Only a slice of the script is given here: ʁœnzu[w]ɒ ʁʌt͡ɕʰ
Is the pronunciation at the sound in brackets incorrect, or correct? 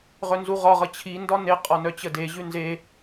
incorrect